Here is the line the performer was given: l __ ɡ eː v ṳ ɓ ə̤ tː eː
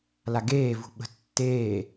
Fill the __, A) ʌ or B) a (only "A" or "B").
B